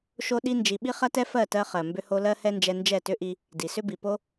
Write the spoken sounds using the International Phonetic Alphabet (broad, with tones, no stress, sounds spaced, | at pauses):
ʃ o˦ ɗ i˦ n d͡ʒ i˧ ɓ i˦ χ ɐ˦ t ɛ˦ f ɜ˦˨ t ɜ˧ χ ɜ˨ m b ʏ˧ h o˧ l ɜ˦ h ɛ˦ n d͡ʒ ɛ˧ n d͡ʒ ɛ˦˨ t ʏ˦ ʔ i˧ | d i˨ s ʏ˦ b i˨ p o˦